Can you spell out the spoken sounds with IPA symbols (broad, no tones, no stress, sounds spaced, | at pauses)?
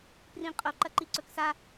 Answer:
p r ĩ qʼ o ǃ ɐ ǃ i ǀ ɵ k s a